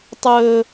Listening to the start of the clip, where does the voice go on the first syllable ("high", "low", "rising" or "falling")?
low